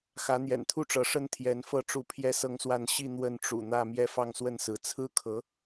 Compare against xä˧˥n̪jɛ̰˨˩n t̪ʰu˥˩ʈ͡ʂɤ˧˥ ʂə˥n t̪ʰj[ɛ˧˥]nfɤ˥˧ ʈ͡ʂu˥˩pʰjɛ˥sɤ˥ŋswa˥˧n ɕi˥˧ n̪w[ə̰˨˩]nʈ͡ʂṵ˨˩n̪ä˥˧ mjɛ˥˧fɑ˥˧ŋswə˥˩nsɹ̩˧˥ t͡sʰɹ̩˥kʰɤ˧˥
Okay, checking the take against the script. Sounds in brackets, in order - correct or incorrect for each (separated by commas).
correct, incorrect